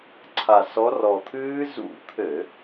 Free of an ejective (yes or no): yes